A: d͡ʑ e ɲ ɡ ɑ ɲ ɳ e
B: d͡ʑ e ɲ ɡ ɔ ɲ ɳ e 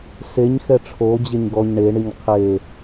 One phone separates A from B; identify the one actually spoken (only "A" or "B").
B